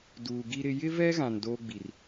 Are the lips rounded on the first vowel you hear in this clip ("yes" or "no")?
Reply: yes